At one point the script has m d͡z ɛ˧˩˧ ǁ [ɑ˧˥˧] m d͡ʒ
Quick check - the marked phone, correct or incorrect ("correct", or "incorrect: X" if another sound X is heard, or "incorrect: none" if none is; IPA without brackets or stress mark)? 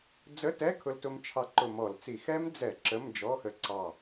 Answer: incorrect: ə˧˥˧